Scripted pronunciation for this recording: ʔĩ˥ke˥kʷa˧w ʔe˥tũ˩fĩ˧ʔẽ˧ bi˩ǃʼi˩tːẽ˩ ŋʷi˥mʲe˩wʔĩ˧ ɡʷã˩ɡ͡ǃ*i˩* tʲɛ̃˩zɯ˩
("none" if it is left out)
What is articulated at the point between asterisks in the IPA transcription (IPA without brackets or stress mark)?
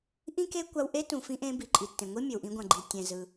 i˩